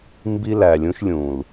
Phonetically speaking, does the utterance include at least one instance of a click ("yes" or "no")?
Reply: no